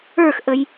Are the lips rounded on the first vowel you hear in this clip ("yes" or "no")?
no